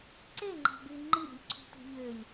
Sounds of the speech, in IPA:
ǀeŋ͡ǃɑ̤by ŋ͡ǃiɾʲṳlʲǀʰṳtṳ ʎølʲ

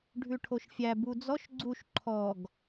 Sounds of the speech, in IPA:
ɖʱʉʈʰoʃfʲæ bud͡zɔʃ ɡ͡ǀuʃ ǃʰɔɡ

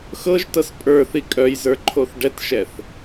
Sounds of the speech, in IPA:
xɤʒtɤs pʼə˞θi kʼœjzə˞ǃʰoθ ɖɛtʃɛθ

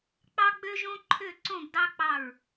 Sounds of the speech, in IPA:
k͡pɑ˦ɡ͡bø˦ʒõ˦ ǃʰø˦˨ǀõ˦˨ɡ dɑ˦k͡pɑ˦˨ɹ

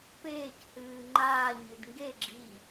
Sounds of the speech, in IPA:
peːchɨː ŋ͡ǃaːɲɨd ŋɡe ɡ͡ǁi

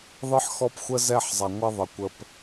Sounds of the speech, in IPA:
ðˤɨ˦ħxɔ˦pxʷə˦zɛ˦˨ħ zˤa˨ŋʷa˦ðˤə˨ kʷə˦p

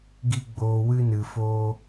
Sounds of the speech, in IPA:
ɡi˦ ɡ͡boː˧wɨ˦ nɨ˧foː˦

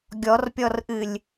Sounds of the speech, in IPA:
ɡʲɔrpʲɔrʔɨlʲ

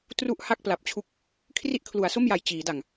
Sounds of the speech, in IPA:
tru˥˩ʔ ha˥˩k̚pla˨˩p̚t͡ɕʰu˥˩k̚ | kʰri˥˩ʔkʰlu˩˦a̯so˥˩mja˨˩j t͡ɕiː˩˦da˨˩ŋ

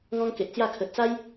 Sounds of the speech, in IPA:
ŋɔ̃˦ŋke˨ʔt͡sja˥˧ kʰə˨t̚t͡sa˦j

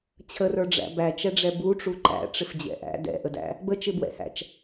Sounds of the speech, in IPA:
t͡ɕʰərə˞ɖ͡ʐæ̰ bæt͡ʃɛɖ͡ʐɛ buʈ͡ʂu ǃæ̰ʈ͡ʂɪfd͡ʑɛ̰ ʔæ̰ dɛ̰ʔədæ̰ | bət͡ʃɪbwɛ̰hæ̰t͡ʃ

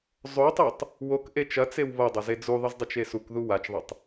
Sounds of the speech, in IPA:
zˤotˤetˤ | wok ʔet͡ʃɐt͡sew βɐdˤɐze d͡zuðˤɨzdˤɨt͡ʃ esukðu wat͡ʃðˤɐtˤ

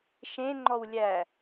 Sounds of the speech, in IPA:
ʃẽŋ͡ǃɔwlʲæ

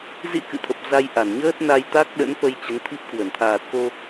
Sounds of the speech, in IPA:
zḭ˧˥ kɨ̰˧˨t̪ʰə˨˩p̚ za˧jʔa˧˩nɲəː˦˥t̚na˧j t̪a˦˥k̚ɗə̰˧˥nfə˧j t͡ɕə˨˦nt̪ʰi˦˥p̚ kwə˧˩n t̪ʰaː˨˩t̚ko˧

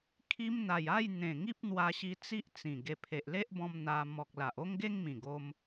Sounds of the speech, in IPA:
kʰi˧m n̪a˨˩ja˥˧j n̪ẽ˨˩ ŋi˦p̚n̪wa˧ɕi˧ t͡si˦ʔt͡sĩ˨˩ ɡe˧ pʰe˨ʔle˦ʔbɔ̃˧m n̪a˧ mɔ˨k̚la˨ʔ o˦ŋɡe˦ŋmĩ˨˩ ɡo˦m

